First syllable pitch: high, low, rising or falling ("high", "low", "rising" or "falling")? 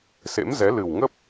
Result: rising